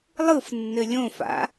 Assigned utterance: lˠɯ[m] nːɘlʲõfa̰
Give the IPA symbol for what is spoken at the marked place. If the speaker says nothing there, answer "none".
f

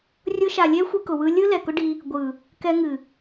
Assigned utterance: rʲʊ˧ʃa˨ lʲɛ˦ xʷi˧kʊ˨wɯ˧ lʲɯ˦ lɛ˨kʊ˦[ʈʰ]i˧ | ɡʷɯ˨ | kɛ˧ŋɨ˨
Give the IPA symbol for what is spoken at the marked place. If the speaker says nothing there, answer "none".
ɖ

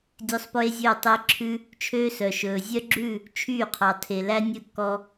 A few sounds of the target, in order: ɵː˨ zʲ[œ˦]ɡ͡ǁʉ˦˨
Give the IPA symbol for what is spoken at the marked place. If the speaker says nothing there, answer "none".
œ˦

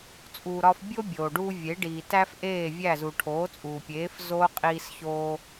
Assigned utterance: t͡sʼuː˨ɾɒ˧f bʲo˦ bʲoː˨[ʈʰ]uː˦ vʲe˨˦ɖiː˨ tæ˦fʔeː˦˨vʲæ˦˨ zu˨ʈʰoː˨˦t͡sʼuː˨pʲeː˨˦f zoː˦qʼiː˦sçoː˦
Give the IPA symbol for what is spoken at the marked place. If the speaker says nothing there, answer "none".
ɖ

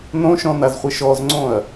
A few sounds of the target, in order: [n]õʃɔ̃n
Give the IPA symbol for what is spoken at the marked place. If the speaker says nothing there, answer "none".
n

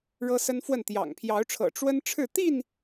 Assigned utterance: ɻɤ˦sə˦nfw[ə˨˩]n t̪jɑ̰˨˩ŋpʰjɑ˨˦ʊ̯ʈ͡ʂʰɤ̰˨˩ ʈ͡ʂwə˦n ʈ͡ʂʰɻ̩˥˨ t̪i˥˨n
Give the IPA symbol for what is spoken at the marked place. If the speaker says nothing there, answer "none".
ə˥˨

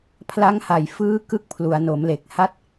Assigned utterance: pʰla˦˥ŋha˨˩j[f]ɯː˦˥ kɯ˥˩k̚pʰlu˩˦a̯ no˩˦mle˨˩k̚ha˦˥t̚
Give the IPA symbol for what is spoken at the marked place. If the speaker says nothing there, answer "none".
f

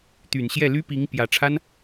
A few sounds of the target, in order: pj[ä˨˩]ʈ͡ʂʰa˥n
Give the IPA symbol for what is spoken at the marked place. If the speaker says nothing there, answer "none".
ä˨˩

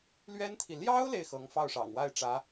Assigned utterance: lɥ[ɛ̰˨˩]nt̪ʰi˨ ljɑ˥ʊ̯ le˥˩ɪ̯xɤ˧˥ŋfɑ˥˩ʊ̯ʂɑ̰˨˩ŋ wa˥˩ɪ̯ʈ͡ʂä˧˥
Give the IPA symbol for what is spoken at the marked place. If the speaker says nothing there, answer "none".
ɛ˥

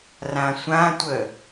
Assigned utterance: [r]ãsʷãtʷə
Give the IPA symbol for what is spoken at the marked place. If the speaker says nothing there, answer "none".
r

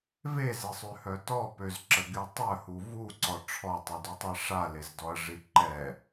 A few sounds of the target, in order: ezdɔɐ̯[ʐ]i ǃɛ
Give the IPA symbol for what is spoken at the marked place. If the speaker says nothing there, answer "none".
ʐ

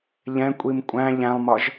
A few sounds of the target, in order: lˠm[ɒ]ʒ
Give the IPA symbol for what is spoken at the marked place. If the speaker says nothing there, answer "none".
ɒ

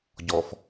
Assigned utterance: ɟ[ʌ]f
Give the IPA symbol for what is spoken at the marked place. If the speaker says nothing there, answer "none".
ɔ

